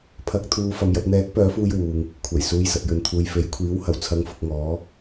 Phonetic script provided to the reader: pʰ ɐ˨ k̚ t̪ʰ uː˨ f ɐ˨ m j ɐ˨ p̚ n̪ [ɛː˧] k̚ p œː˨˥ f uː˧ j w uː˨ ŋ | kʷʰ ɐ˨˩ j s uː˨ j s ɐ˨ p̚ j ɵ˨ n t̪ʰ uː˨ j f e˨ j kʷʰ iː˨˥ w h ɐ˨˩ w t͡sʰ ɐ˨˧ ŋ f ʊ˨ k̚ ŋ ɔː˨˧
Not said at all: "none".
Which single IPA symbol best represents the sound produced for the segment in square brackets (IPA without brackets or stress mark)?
ɛː˨˥